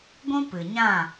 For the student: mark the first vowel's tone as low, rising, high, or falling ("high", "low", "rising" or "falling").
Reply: high